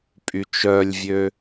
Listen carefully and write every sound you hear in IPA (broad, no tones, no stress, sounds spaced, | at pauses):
pʼ y t͡ʃ œ lʲ vʲ ø